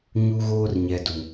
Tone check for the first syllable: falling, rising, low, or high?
high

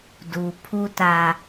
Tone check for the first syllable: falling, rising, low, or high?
low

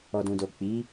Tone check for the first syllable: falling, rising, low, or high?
low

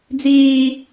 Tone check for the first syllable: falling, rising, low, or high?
high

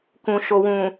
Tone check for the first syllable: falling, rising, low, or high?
low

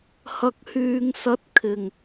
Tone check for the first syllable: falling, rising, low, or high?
low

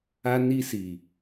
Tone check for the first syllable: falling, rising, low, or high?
high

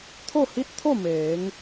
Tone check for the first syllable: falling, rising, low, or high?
falling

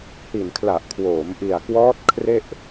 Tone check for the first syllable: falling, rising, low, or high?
low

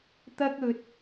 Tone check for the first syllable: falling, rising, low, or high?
high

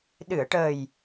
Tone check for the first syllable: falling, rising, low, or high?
low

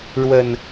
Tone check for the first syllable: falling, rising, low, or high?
low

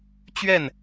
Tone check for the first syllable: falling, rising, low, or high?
falling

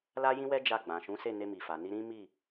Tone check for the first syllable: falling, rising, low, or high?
high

